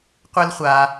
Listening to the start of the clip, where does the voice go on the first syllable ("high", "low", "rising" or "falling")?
high